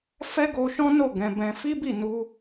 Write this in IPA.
f ɛ˦ ɡ o˧ ʃ ɔ̃˦ n o˦˨ ɡ ɛ̃˧ b ɛ̃˧ f i˦ b i˦˨ n u˧

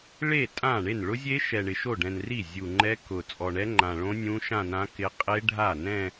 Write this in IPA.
ɭ e˥˩ tʼ ã˥˩ ɳ e˥˩ n ɭ ʊ˦˥ zʲ e˦˥ ʃ ɛ˨˩ ɳ ɪ˨˩ ʃ o˥˩ ɖ ɛ̃˨˩ n r i˥˩ zʲ u˨˩ ŋ͡ǃ ɛ˦˥ k ʊ˨˩ t͡sʼ ɔ˨˩ ɳ ɛ˦˥ ŋ͡ǃ ã˨˩ ɭ õ˦˥ nʲ ũ˦˥ ʃ ã˥˧ n ã˦˥ k ɪ˦˥ qʼ e˦˥ ɖʱ a˥˩ n ɛ̃˥˧

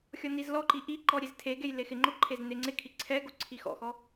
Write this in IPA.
xʲ ɔ n i z l ɔ ǃ i ʔ i ǃ ɔ ɾʲ e z tʰ e ɡ e j l e x ɪ ŋ͡ǃ o ǃʰ e z n e ŋ͡ǀ ɪ kʰ i ǀʰ ɛ ɡ o ǀʰ i x ɔ̰ x ɔ

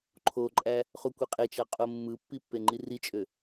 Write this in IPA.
ǃʰ o ǃʼ æ | χ u kʷ e qʼ e t͡ʃ ɑ qʼ o mː ɯ pː i pː e ŋ͡ǃ i r i t͡ʃʼ ø

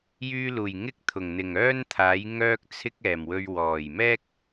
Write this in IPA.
j yː˧ l uː˨˩ j ŋ ɪ˥ k̚ t̪ʰ ʊ˨˩ ŋ n̪ ɪ˨˩ ŋ œː˥ n t̪ʰ aː˨˥ j ŋ œː˥ k̚ t͡sʰ ɪ˥ k̚ ɛː˨˩ m w ɵ˧ ɥ w ɔː˨˩ j m ɛː˥ k̚

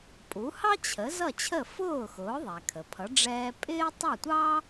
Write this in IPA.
pʼ u˩˥ h ɑ˥ t͡ɕʰ ə˩˥ z ʌ˥˩ t͡ɕʰ ə˥˩ f ʊː˥˩ x ʊː˩˥ ðˤ æ˩ kʰ ə˩ pʰ ʌ˩˥ ɖ͡ʐ ɛː˧ pʼ ɪː˥ tˤ ʌ˥˩ tʷ ɑː˥

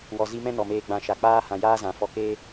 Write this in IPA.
w ɔ˨ z i˧ m ɛ̃˦ n ɔ˨ m eː˧ ɡ͡b ã˧ ʃ a˨ k͡p aː˦ h ã˨ j aː˦ z ã˨ f ɔ˧ k eː˦

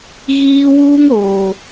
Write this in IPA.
ɣ iː˦ w uː˦ ŋ ɾ oː˨

